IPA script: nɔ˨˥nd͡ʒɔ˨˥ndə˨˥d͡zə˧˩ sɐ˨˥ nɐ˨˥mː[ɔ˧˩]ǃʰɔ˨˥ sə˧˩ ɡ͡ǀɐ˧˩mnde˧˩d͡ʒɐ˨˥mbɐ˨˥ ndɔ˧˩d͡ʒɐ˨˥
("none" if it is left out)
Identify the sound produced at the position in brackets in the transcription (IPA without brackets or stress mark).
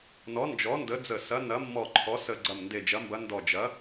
ɔ˧˩